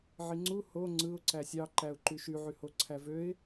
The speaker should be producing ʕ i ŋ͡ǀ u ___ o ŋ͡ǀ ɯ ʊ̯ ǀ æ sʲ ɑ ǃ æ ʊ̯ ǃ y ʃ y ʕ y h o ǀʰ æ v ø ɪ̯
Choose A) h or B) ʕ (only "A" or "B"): A